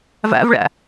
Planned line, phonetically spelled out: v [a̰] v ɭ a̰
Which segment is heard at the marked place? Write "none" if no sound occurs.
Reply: a̰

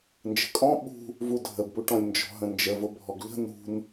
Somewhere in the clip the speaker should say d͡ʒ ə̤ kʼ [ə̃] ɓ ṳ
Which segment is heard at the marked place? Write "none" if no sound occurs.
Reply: ɔ̃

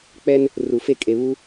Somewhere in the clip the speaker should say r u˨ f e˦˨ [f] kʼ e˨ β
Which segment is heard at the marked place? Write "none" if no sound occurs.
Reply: none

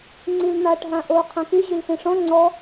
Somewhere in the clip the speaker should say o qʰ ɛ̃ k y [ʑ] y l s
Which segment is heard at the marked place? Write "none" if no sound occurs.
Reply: ʑ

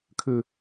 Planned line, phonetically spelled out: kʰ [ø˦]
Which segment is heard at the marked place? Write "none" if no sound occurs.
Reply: ø˦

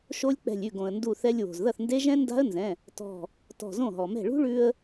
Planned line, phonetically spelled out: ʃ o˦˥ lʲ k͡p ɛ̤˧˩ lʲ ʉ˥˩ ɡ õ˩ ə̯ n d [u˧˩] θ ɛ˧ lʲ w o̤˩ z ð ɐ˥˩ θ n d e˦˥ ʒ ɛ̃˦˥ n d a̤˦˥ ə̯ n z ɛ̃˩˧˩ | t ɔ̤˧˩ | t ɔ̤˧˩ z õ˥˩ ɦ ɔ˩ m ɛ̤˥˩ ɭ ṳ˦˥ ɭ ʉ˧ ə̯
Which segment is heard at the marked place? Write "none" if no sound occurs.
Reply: u˧˩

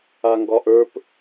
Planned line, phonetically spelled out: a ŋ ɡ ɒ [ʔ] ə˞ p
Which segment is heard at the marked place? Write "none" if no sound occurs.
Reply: ʔ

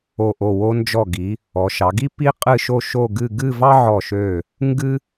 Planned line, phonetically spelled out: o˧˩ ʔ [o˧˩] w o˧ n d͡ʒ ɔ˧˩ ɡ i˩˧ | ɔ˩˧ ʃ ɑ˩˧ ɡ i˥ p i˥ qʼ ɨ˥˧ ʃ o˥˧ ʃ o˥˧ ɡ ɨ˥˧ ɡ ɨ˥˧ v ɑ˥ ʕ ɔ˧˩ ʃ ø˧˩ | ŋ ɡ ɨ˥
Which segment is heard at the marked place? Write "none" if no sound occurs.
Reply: o˧˩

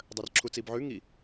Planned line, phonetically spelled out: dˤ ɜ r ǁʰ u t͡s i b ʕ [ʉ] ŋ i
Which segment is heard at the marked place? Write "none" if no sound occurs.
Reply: ʉ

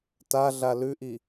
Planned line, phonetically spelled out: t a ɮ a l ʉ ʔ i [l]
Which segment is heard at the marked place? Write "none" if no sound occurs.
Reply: none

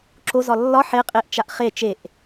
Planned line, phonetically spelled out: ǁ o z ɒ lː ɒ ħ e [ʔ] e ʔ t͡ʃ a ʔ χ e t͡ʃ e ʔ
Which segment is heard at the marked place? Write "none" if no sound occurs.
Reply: qʼ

